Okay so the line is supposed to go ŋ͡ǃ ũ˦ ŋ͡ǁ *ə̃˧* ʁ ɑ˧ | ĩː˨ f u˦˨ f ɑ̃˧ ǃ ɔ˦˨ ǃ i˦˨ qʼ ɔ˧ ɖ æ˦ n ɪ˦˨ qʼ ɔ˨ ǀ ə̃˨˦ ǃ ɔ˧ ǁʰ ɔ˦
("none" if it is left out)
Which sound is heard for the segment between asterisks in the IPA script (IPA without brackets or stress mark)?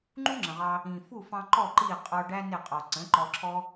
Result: ə̃˨